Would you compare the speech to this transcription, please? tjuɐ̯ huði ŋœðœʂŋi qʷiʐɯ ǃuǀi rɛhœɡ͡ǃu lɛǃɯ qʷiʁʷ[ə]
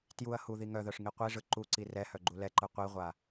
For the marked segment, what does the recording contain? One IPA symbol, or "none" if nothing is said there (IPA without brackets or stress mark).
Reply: a